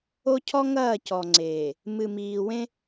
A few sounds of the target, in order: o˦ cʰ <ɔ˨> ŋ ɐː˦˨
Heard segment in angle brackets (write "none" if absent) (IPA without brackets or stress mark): ɔ˦